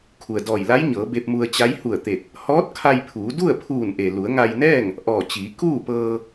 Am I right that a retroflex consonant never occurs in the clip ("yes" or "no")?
yes